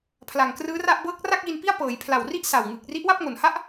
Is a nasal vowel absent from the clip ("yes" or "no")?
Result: yes